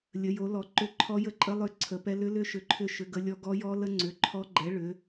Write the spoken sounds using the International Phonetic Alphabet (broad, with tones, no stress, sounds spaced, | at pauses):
lʲ ə˨˥ j o˨˥ l ɔ˨˥ ǃ ʏ˦˥ ǃʰ ɔ˦˥ j ə˦˥ ǃʼ ə˦˥ lˠ ʏ˨˥ ǀʰ ə˨˥ p ɛ˦˥ l ʏ˦˥ l ʏ˦˥ ʃ ʏ˨˥ ǃʰ ʏ˦˥ ʃ ʏ˨˥ ɡ ə˦˥ lʲ ɔ˦˥ ɡ ɔ˦˥ j ɔ˦˥ l ə˦˥ ŋ͡ǀ ʏ˨˥ ǃʰ ɔ˦˥ ɡ͡ǃ ɛ˨˥ ɭ ʏ˨˥